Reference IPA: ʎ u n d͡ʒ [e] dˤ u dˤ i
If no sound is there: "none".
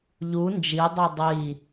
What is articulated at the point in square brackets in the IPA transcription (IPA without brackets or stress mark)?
i